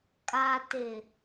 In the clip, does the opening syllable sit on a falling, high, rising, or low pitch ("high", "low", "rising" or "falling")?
low